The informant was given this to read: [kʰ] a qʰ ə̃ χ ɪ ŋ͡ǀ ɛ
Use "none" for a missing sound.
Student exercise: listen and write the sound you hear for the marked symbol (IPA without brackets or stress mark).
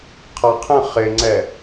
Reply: qʰ